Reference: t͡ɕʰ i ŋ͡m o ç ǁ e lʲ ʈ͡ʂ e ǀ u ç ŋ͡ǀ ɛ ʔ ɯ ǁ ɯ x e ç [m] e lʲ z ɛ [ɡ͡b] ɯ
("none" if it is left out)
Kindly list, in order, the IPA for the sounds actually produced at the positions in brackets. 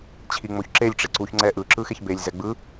b, ɡ͡b

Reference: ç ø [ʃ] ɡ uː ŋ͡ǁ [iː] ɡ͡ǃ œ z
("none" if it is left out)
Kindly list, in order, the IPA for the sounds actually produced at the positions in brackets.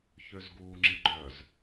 z, i

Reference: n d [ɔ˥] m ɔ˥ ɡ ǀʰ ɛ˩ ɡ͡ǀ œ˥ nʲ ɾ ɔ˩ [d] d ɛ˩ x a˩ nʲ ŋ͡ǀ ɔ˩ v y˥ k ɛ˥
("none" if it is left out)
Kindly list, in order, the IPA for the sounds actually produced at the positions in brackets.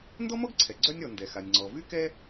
ɔ˥, n

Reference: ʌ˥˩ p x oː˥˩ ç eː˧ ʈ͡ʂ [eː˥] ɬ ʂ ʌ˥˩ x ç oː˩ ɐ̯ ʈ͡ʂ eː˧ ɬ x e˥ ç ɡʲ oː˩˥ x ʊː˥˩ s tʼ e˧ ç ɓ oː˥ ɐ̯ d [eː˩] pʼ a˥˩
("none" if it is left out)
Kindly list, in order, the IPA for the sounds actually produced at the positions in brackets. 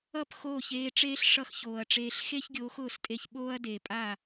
eː˥, eː˩

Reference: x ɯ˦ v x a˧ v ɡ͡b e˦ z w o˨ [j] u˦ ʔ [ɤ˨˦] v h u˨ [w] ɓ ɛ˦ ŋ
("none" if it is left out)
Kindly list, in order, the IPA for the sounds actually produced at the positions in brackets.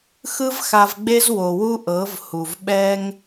w, ɤ˨˦, v

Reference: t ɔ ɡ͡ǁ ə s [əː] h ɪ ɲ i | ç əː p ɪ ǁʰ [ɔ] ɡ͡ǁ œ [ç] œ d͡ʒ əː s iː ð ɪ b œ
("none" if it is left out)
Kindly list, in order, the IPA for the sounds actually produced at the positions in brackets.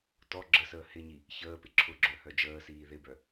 əː, ʊ, h

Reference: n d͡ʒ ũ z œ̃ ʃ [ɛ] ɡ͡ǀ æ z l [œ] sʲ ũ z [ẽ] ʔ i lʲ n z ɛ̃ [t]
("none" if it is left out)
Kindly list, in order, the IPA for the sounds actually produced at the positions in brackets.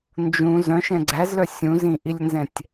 ɛ̃, œ, ĩ, tʲ

